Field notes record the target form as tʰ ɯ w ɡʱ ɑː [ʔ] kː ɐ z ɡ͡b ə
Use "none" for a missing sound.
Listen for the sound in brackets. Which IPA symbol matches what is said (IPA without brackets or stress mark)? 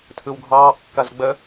ʔ